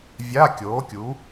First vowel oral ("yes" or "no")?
yes